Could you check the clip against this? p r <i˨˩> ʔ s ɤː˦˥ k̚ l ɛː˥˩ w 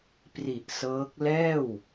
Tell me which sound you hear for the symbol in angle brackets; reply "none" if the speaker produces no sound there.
i˨˩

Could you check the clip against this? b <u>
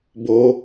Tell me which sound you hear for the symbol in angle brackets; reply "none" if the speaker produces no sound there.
o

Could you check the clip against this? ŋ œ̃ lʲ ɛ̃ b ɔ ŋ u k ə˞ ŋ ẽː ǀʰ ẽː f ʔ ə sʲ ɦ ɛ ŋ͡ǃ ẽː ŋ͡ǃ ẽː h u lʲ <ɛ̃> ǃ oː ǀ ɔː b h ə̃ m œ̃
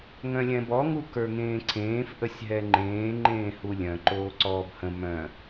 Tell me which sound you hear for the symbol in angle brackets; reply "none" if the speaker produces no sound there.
œ̃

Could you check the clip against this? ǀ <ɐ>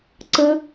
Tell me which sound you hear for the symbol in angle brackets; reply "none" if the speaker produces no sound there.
ə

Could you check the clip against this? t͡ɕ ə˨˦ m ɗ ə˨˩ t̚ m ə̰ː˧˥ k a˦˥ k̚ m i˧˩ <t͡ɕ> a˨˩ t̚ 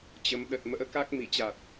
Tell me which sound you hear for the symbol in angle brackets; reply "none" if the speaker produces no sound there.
t͡ɕ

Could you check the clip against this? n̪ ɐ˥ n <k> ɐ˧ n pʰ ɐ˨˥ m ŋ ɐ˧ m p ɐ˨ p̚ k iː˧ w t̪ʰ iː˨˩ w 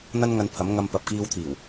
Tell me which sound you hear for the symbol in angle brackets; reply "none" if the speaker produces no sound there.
ŋ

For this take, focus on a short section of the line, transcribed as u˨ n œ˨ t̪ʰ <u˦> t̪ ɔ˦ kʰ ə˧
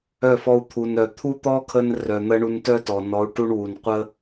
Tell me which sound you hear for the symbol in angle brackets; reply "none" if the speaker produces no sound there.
u˦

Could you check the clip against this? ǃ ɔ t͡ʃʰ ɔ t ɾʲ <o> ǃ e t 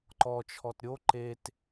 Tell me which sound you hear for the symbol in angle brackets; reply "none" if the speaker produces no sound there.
o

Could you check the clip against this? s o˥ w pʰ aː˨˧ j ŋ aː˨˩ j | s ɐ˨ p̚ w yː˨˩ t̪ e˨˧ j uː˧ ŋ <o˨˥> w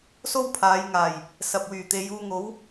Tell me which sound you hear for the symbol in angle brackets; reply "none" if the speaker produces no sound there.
o˨˥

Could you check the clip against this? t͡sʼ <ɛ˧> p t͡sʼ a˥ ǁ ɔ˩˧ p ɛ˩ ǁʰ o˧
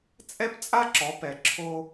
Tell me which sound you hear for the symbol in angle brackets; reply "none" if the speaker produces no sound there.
ɛ˥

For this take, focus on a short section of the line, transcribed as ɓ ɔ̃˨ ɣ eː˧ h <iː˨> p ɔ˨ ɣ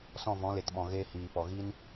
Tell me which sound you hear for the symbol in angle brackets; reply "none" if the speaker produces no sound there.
iː˨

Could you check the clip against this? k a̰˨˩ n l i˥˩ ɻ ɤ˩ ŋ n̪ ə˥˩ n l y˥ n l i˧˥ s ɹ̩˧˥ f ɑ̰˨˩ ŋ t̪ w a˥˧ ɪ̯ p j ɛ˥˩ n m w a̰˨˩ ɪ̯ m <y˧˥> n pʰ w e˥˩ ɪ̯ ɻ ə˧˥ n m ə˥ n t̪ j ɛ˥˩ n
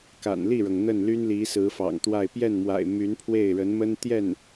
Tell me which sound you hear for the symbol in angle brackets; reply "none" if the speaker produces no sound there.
y˧˥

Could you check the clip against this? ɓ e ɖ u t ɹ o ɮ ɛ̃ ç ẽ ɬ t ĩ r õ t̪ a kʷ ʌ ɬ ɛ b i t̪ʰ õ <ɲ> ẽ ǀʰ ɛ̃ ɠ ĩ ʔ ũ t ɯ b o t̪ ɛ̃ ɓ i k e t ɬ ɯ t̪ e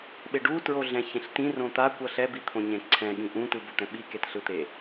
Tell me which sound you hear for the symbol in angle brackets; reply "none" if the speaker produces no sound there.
ɲ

